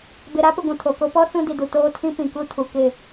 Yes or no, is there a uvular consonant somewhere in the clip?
no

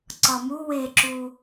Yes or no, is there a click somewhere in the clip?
yes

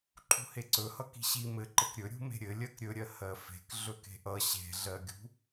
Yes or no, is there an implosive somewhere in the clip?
no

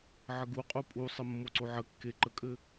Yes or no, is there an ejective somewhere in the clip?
yes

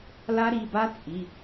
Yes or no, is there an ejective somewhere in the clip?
yes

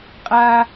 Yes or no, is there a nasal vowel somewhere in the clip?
no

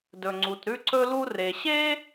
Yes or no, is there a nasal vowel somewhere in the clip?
no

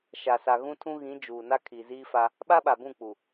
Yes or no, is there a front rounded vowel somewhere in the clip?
no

